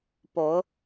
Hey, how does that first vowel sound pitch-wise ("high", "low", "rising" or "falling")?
rising